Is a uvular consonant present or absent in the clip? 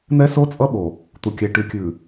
absent